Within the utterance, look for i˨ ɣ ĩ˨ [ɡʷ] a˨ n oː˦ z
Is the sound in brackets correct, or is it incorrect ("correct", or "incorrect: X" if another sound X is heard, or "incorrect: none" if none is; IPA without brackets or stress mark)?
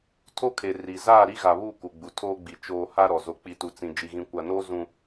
incorrect: kʷ